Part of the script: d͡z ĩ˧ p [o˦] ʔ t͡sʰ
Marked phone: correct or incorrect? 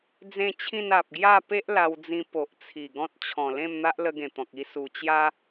incorrect